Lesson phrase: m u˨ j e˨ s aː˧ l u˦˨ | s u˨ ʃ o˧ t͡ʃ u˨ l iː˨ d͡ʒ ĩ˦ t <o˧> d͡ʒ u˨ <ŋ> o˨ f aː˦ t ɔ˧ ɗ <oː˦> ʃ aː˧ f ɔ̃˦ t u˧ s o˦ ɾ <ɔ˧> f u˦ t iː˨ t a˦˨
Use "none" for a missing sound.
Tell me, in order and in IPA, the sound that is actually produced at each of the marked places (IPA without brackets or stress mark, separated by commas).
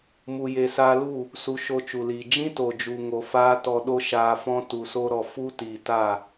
o˨, ŋ, o˦, ɔ˧